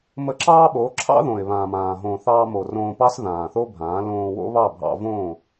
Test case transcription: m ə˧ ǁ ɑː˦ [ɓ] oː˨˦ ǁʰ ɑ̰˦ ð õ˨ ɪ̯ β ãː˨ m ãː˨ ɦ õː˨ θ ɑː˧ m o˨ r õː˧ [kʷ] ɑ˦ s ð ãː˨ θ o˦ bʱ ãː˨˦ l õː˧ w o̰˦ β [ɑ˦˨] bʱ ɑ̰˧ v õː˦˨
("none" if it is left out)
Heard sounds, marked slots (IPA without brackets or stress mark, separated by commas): ɓ, p, ɑ˦˨